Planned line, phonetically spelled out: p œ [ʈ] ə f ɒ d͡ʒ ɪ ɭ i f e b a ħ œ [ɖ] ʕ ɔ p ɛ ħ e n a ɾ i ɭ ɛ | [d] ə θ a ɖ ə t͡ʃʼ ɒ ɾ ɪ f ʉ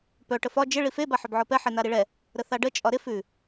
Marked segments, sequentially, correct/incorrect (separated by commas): correct, incorrect, incorrect